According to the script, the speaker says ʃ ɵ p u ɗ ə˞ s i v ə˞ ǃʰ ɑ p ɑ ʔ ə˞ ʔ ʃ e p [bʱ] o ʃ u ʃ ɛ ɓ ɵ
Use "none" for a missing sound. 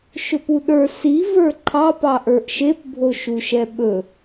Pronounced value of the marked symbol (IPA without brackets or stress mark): bʱ